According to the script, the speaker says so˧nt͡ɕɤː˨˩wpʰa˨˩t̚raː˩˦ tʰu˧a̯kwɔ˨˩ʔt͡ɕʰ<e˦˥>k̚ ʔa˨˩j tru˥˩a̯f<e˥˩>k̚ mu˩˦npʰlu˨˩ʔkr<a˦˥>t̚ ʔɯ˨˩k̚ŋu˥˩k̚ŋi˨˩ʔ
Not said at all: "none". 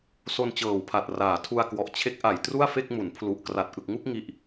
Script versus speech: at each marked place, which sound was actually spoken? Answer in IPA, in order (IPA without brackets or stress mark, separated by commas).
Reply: e˦˥, e˥˩, a˨˩